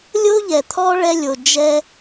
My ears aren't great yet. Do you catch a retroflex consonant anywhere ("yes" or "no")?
yes